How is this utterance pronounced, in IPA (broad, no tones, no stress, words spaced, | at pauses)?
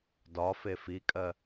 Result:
dɒfe fikʼɜ